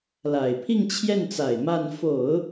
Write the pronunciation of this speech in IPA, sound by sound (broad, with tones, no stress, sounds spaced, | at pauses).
l a˨˩ ɪ̯ pʰ i˥˧ ŋ t͡ɕʰ j ɛ˥˩ n t͡s a˨˩ ɪ̯ m a˥˩ n f o˨˩˦ ʊ̯